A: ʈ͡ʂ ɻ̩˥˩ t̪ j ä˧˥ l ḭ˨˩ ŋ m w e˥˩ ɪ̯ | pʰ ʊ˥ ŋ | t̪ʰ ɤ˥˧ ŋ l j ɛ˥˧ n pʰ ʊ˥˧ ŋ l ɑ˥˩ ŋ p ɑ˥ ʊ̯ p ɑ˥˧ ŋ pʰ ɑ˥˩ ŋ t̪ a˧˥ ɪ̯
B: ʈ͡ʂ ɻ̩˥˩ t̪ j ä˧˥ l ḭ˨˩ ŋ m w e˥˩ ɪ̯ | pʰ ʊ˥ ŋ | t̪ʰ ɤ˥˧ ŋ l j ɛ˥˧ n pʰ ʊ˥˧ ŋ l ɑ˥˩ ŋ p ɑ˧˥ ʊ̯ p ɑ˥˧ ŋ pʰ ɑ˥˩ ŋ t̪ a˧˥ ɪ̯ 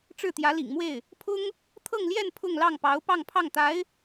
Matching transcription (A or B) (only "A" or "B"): B